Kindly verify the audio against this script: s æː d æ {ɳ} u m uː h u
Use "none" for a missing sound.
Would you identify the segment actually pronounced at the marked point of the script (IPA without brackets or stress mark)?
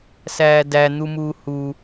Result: n̪